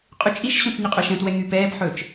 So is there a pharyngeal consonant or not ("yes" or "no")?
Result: yes